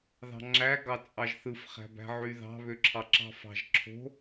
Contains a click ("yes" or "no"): yes